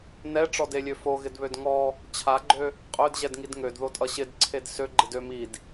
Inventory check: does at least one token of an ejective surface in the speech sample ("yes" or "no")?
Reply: yes